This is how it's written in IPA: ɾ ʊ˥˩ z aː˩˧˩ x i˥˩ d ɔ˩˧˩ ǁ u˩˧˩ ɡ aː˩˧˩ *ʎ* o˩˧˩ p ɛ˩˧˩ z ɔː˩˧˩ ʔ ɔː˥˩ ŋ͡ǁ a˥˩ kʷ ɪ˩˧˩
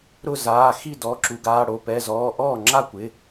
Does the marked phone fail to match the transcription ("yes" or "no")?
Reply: yes